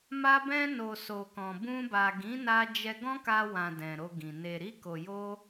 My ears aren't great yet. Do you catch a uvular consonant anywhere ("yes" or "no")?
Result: no